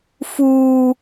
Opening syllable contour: high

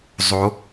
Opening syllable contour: rising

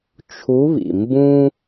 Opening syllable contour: rising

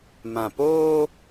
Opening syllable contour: low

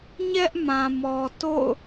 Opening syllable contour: high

